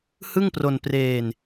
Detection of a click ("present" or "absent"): absent